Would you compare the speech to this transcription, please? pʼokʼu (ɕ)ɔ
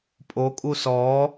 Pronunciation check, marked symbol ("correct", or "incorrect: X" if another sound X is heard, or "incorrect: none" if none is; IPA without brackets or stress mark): incorrect: s